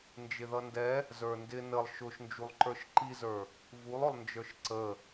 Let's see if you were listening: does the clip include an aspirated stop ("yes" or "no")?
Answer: no